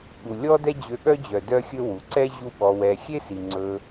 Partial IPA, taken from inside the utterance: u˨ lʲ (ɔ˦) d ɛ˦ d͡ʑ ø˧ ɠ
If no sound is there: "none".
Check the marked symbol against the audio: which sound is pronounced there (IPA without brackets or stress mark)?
ɔ˦